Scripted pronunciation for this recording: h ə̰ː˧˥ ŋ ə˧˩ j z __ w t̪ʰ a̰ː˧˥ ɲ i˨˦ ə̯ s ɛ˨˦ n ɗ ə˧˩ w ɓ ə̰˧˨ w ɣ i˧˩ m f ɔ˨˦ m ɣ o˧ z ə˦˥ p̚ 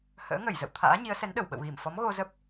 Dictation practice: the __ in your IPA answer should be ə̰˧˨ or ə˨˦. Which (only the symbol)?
ə̰˧˨